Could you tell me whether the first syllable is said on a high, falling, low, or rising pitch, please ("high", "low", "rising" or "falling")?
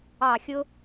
falling